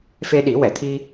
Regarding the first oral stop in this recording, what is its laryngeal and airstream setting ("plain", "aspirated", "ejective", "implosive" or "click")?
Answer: implosive